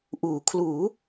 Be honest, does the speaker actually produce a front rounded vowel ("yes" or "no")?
no